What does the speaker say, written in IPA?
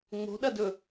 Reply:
ŋ͡mo̤ ɗɐdɵ

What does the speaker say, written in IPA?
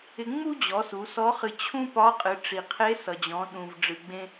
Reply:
ɪ˧ŋ͡mu˥d͡ʑɔ˩˧ su˩˧sɔ˧˥ χɨ˧ t͡ɕʰũ˥ pɒ˧˥qʼɨ˩˧ ʈ͡ʂi˩qʰe˧˥sʌ˩d͡ʑɔ̃˩˧ ɗũ˩v ɖ͡ʐɨ˩ɡ͡bẽ˧

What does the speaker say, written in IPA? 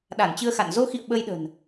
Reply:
ɗa˧˩nt͡ɕɨ˧ə̯xa̰˧˨n zo˧xḭ˧˨ə̯ ɓə˧jɗə̤˨˩n

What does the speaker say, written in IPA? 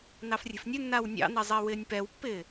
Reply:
nɑfrʲe̤fnʲɵnːaw nʲɑ̰nɛ zˤɛwɪːnʲpɛwpːɪː

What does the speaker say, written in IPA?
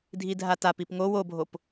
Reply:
dʱidʱatap ipŋow obʱop

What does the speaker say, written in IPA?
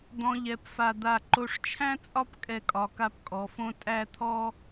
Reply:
d̪ɔ̃˧ʎɛ˧˩pfa˧˩ d̪a˧˩ ǃo˧˩ʂt͡ʃʰæ̃˥t͡sʼɒ˥˧p kʼɛ˧˩kʼɒ˩˧ka˧p kʼɔ˩˧fõ˥ tʼæ˥˧t̪ʰɔ˥

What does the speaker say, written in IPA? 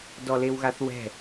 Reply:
dɔlewɣaθwɛ̤

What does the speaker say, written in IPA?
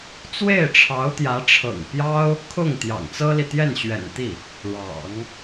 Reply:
t͡swe˥˩ɪ̯ʈ͡ʂʰɑ˧˥ʊ̯t̪jä˧˥ ʈ͡ʂʰɤ̰˨˩ŋpjɑ˥ʊ̯ | kʰʊ˥˩ŋ t̪jɑ̰˨˩ŋt͡sɤ˥li˨ t̪jɛ˥˩nɕɥɛ̰˨˩nt̪i˥˩ | ɻɑ̰˨˩˦ŋ

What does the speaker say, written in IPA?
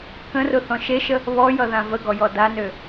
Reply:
kə̃rʊθɔ̃ ʃeʃə | βɔjʌðã vəɡɔjɔ danø

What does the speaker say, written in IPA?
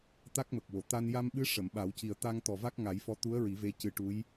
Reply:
t̪a˦˥k̚mə˨˩k̚wo˨˩˨ t̪a˧n ja˧mɓɨ˧˥ ʂə˨˩˨mɓa˨˩˦wci˨˩ə̯ t̪a˧ŋ t̪ɔ˨˩va˦˥k̚ ŋa˨˩˦jfɔ˧ t̪u˧˥ə̯ ɹi˨˩˦ve˧˥ cɨ˨˩ ʈu˧˥j

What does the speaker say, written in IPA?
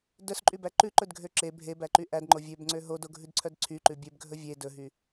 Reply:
dœsǃʼybæ ǃʉǃɵdɡʱø ǁe bʱebæǃy ʔædŋ͡ǃo vʲøbŋ͡ǀø ɦodoɡʱʉdǀʰœd ǀʰyǃʉ bʲøbɡʱɵ vʲe dɵɦy

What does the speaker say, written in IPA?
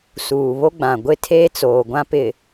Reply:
suː˨βo˦ɡ͡bã˨ ɡʷɪ˦tʰeː˦t͡soː˨ ɡʷã˦pɪ˨

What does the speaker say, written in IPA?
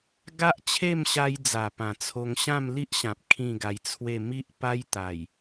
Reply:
ɡa˦ʔt͡ɕʰe˥˧mɕa˧jd͡za˨˩ pã˨˩t͡sʰo˧ŋ ɕã˥˧mli˦ʔɕã˨p̚ kʰĩ˥˧ɡa˧jt͡sʰwe˥˧ mi˦ʔ pa˦jt̪a˨˩j

